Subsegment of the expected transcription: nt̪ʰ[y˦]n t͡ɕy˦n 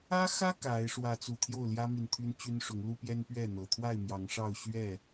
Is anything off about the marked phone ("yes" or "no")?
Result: no